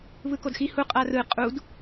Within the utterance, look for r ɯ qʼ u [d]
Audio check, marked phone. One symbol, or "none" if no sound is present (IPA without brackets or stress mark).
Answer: d